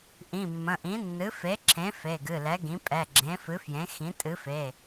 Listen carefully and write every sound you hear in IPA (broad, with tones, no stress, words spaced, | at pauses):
ʔĩ˩˧˩mːə̃˩˧˩ʔĩ˩˥nːɨ˩˥ fe˩˥ǁʰẽ˩˥ fe˩˧˩ɡɨ˩˧˩lɛ˩˥ɡĩ˩˥ pʼɛ˩˧˩ɡ͡ǁẽ˩˥fɨ˩˥fjẽ˩˥ xĩ˩˥tʼɨ˩˥fe˩˧˩